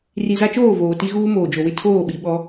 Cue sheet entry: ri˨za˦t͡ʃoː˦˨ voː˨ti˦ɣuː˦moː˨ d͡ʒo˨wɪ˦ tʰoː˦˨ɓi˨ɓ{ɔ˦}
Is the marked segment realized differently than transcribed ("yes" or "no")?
no